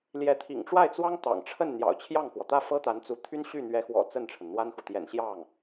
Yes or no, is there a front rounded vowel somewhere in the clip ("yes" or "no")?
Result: yes